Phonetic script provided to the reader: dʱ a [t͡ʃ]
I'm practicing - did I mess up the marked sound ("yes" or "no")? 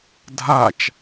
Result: no